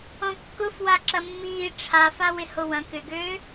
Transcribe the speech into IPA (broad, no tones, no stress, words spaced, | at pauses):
ɔ̃kːʊfwa ǁɐmːiː ʈ͡ʂʰafawɪ howɐ̃ kʏɡøː